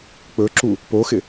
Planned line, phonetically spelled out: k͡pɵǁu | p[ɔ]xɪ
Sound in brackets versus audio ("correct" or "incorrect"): incorrect